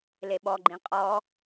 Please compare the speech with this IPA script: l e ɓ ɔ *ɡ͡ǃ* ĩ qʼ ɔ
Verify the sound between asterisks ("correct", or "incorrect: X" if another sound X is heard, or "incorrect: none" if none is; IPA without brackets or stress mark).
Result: correct